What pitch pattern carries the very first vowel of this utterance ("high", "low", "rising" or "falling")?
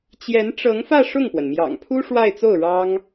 rising